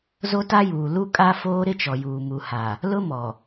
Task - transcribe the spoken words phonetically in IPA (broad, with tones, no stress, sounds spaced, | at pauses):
z o˦ t a˦ j uː˨ l u˦ kʼ a˦ f oː˦ ɾ ɪ˦ t͡ʃ ɔ˨ j uː˨ m u˨ h a˨ | l ʊ˦ m ɔ˨